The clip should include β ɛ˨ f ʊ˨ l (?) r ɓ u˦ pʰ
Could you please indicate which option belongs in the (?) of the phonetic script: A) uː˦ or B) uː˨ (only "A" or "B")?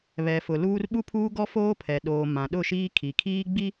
A